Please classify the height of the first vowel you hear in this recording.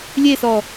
mid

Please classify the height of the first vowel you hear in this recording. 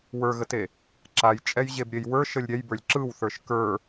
mid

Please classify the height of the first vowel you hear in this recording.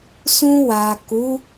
high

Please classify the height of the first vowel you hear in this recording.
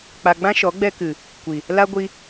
low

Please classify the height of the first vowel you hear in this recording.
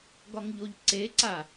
low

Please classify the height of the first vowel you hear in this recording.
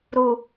high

